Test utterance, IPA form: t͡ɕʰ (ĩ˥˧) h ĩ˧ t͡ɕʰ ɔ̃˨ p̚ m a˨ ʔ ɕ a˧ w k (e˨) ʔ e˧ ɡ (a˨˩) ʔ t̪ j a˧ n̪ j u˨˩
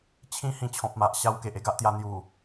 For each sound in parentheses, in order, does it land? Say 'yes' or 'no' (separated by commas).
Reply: no, yes, no